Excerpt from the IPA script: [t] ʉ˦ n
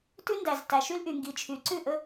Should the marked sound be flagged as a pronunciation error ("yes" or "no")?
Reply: no